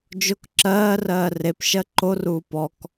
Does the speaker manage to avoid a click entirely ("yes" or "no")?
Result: no